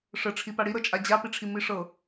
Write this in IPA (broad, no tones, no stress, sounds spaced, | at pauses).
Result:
ʂ ə ʈ͡ʂʰ i p a ɽ i ɾ ɤ t͡ʃʼ a d͡ʑ a p i ʈ͡ʂʰ i m i ʂ ɤ